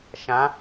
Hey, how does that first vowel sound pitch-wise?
rising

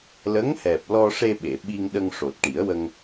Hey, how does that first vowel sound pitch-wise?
rising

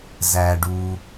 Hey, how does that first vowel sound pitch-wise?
low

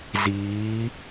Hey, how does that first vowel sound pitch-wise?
rising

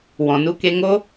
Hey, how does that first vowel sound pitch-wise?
low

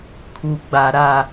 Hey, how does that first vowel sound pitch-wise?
low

